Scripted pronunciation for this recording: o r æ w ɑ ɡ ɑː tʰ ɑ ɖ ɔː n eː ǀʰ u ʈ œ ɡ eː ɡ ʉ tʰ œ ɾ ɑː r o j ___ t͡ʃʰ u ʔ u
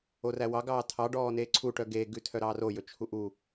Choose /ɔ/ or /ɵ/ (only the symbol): ɵ